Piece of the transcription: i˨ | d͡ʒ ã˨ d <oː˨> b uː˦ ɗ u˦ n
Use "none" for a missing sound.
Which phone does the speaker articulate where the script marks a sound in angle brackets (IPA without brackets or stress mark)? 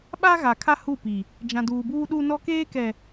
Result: uː˨